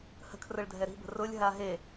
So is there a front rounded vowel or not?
no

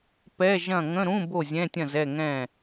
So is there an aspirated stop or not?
no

